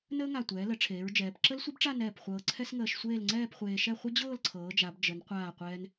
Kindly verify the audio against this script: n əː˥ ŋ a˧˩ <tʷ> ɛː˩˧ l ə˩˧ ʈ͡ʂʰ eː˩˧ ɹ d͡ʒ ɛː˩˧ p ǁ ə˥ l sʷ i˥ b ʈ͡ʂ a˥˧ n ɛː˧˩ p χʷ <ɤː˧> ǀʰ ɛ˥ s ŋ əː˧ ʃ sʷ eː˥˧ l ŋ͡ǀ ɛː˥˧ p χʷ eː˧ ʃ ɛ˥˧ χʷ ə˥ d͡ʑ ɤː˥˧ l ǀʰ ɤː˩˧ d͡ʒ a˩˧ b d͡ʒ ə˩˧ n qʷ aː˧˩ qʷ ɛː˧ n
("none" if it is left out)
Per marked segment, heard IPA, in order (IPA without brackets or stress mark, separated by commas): tʷ, ɤː˧